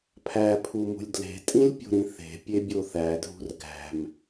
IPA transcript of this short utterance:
pʰ æ pʰ u m ṳ lʲ d l e̤ tʼ ĩ lʲ pʲ o̤ ɾ ĩ θ e̤ pʲ e bʲ o θ æ dʱ ṳ r ɡ æ̤ m

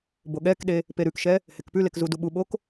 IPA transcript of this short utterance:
b o ɠ ɛ k ɗ e | p e ɾ ʉ k ʃ ɛ | h e k p ʉ l e k z u d u ɓ u ɓ o k

